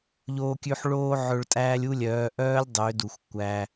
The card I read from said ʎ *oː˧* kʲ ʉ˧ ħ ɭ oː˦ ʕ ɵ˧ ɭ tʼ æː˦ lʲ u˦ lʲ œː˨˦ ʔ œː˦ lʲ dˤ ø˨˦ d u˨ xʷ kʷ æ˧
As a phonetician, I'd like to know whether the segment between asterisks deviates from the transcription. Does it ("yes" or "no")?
no